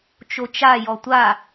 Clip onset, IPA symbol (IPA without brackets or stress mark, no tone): t͡ʃ